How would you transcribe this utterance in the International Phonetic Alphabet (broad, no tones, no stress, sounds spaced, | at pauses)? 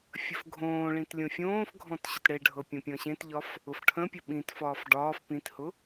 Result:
fʲ ə f ɡʱ õː ɭ ĩ t lʲ õ fʲ õː f ɡʱ ɔ̃ t ɕ ʊ t ɽ e ɖʱ ɤ pʲ õ pʲ ɔ̃ ɕ ẽ t ʎ ɒ f | ʊ f ʈʰ ə̃ pʲ ə ɓ ĩ t f ɒː f ɖ ɒː f p ĩ t h ʊ